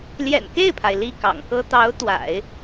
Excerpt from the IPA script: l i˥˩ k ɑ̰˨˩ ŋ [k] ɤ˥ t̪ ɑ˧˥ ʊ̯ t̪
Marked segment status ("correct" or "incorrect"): correct